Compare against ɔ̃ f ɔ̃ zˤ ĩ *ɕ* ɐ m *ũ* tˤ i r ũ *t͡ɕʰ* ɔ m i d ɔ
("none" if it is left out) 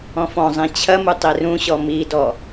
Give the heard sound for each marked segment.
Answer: t͡ɕʰ, u, ɕ

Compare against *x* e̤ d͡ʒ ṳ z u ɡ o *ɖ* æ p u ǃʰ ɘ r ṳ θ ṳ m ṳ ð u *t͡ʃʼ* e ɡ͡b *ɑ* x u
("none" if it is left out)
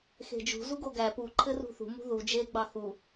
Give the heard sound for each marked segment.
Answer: x, ɡ, d͡ʒ, ɑ

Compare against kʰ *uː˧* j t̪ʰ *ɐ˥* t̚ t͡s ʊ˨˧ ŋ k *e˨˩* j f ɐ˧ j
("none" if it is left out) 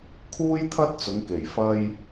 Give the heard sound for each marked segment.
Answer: uː˥, ɐ˥, e˨˩

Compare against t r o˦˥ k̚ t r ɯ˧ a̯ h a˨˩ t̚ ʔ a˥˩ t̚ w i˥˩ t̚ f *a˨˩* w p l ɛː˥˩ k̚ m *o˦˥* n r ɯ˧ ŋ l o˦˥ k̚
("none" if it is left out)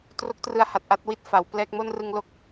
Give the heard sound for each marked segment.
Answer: a˩˦, o˥˩

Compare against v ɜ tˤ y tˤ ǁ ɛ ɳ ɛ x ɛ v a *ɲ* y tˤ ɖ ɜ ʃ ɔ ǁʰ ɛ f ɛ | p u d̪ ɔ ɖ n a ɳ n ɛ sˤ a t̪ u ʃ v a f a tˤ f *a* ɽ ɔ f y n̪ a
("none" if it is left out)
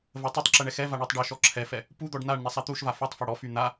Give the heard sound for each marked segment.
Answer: ɳ, a

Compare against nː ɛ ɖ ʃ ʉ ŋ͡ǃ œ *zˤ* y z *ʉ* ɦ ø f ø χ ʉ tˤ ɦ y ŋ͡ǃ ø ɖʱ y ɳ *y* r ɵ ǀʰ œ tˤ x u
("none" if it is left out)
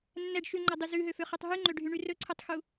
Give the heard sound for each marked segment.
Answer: dˤ, ʉ, y

